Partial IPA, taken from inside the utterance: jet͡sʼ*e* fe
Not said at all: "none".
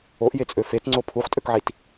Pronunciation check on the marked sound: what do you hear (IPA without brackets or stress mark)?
ø